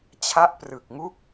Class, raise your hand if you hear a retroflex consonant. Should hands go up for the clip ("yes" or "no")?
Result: no